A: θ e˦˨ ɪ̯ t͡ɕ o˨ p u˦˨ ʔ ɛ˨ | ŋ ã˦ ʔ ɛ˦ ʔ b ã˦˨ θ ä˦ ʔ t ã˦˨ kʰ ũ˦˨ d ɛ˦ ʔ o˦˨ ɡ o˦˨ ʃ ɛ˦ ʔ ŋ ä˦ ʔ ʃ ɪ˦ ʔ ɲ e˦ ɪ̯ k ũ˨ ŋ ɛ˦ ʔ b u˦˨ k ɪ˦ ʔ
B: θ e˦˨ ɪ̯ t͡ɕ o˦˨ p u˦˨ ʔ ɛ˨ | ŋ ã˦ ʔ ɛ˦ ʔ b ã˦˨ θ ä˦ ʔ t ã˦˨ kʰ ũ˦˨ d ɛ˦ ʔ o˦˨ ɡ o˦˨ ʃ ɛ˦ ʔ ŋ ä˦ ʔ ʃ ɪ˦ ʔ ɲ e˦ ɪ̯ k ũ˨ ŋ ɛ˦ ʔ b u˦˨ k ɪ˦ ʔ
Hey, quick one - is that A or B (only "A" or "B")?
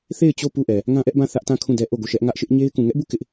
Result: B